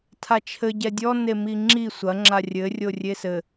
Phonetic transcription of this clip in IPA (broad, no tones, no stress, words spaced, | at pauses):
tʰat͡ʃʰɘ ɟɛdʲɔ nemiŋ͡ǁi sʷɐ ŋ͡ǁarʲɘ rʲorʲesɘ